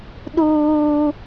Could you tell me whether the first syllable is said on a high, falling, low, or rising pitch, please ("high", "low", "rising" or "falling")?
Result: high